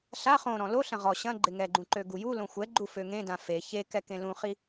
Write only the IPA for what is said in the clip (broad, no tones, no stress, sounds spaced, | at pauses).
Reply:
ɬ a χ õ ɾ ɔ̃ l o ɬ ɐ̃ ʁ ɔ ɕ ɐ̃ ɡ͡ǃ ɪ ŋ ɛ ɡ͡ǃ ũ ǃ ø ɡ u j u l õ xʷ ɛ ɡ͡ǃ u f ø ŋ ẽ d ã f e ç e k ɛ k ẽ l ũ χ i